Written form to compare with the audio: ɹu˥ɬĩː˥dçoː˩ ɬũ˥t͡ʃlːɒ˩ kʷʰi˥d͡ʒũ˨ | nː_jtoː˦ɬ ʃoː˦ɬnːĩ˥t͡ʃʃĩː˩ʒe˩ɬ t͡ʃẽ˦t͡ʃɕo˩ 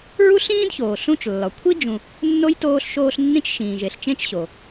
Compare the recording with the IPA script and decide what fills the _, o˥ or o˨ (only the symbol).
o˥